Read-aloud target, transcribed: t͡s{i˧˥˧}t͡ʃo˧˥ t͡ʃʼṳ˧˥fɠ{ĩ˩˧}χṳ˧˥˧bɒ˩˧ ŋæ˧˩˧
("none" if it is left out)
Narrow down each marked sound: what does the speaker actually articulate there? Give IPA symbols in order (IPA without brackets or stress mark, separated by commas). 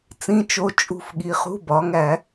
ĩ˧˥˧, i˩˧